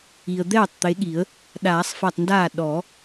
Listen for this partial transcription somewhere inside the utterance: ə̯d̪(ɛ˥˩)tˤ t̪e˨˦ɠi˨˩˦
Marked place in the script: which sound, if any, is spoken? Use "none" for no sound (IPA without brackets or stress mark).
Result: ɛː˥˩